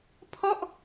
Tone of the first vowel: falling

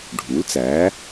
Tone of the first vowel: rising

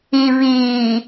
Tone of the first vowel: low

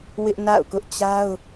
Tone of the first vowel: high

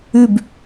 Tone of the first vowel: falling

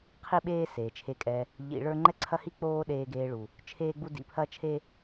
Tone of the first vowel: high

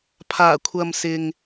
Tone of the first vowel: low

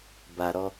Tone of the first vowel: low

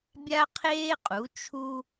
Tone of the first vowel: high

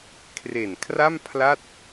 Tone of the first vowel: low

